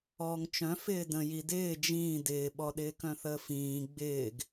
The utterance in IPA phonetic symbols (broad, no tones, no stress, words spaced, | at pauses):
ɔːŋt͡ʃœ̃ fɪːdə̃ji dɪː d͡ʒĩː dɪːɓɔ ɗɪːkœ̃θəːfĩː ɡ͡bɪːɡ